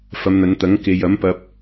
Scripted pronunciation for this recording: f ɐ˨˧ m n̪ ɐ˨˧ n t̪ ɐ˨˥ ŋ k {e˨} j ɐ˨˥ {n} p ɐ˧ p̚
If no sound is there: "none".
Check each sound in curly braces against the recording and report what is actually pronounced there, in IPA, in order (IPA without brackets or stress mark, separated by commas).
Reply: e˨, m